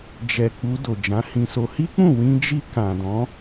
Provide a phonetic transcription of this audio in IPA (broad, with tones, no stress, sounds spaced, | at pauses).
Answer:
d͡ʒ ɛ˨ k͡p u˧ d o˨ d͡ʒ ã˨˦ h ĩ˧ s o˧ h i˦ k͡p ũ˦˨ w ĩ˧ d͡ʒ i˧ k ã˨ d ɔ̃˨˦